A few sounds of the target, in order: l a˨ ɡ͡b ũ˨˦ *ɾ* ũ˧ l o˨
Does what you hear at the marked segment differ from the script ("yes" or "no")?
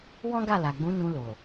yes